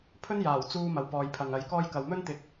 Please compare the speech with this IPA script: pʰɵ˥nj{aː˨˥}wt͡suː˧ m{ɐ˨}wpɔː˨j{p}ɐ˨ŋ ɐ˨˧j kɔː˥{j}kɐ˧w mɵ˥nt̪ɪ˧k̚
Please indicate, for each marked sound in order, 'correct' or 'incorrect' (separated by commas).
incorrect, correct, incorrect, correct